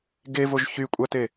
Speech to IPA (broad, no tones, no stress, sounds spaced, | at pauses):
ɡ e v o ʒ ç y kʷʼ a t e